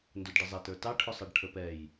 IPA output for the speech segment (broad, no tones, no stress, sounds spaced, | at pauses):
n d ʊ d ɖ ə zˤ ɛ t ə˞ t ɑ ʈʰ ʊ sˤ ɑ ɖ ʈʰ ə p ɛ j